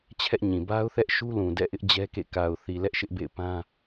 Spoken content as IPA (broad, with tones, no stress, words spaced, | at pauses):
t͡ɕʰɛ˦ʔɲĩ˨ ba˦ʊ̯θɛ˦ʔʃu˦lũ˨ dɛ̰˦˨ʔɪ˦ʔ d͡ʑɛ˦kḛ˦˨ ka˨ʊ̯θi˨ lɛ˦ʔʃɪ˦ʔbḛ˦˨ɪ̯pã˦